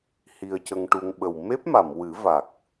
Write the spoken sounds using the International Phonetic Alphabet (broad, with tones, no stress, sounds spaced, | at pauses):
h i˧ ə̯ c ə˧ ŋ ʈ u˧ ŋ ɓ ə˨˩ w m e˦˥ p̚ m a˨˩˨ m w ɨ˨˩˦ v a˨˩ k̚